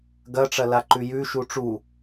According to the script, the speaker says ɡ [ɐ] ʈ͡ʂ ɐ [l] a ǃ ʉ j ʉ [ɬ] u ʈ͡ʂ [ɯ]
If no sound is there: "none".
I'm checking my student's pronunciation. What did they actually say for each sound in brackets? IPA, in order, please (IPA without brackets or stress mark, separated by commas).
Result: ɐ, l, ʃ, u